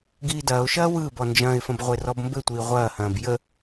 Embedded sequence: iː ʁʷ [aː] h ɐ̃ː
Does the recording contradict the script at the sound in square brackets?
yes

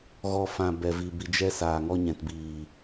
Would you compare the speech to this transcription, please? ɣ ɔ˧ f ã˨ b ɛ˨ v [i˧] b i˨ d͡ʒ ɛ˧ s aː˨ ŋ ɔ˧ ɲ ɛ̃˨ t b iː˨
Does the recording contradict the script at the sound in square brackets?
yes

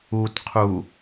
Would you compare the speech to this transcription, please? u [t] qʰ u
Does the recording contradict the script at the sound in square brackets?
no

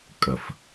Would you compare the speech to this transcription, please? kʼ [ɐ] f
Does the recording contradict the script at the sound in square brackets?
no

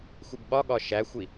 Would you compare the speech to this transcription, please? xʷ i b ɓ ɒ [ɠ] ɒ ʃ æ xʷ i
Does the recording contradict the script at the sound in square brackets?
no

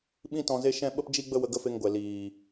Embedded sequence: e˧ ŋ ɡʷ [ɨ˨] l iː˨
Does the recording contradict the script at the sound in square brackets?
yes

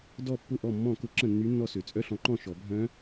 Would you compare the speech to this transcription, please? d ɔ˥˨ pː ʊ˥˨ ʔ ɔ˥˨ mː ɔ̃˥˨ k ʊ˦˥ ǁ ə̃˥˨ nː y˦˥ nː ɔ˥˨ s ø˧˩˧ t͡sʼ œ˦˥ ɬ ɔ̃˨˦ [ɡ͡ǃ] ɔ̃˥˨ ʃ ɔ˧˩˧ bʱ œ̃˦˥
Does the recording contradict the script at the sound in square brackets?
yes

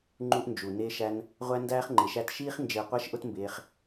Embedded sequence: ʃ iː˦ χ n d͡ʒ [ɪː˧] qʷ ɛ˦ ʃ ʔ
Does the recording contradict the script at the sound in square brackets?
no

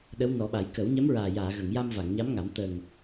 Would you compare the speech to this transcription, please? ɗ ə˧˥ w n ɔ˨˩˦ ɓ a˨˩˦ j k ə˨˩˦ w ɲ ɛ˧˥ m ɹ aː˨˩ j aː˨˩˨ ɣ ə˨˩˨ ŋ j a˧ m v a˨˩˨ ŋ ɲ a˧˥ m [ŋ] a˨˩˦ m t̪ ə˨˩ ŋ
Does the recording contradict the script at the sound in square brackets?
no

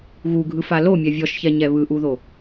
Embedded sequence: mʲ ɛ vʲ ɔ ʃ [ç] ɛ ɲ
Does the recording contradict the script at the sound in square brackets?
no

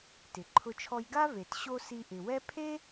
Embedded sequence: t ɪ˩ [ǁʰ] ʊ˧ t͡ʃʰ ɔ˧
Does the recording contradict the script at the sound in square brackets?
yes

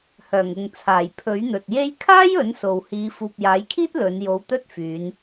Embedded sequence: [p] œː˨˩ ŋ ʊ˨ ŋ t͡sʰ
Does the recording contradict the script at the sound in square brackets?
yes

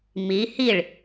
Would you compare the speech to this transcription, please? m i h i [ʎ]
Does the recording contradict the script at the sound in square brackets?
yes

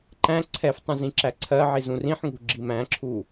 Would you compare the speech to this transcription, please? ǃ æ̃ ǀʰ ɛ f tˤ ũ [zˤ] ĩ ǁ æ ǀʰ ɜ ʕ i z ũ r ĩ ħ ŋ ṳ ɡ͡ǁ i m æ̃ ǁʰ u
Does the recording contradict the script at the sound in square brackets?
yes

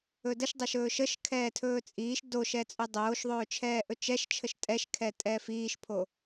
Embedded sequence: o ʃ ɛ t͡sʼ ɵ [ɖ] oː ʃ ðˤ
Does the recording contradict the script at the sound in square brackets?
yes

